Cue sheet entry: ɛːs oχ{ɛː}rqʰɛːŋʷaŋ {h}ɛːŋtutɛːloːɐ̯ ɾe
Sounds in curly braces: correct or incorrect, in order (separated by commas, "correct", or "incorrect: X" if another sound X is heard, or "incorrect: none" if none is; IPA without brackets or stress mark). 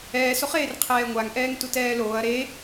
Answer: incorrect: eː, incorrect: ʔ